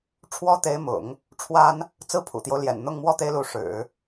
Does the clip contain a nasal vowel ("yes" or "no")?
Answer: no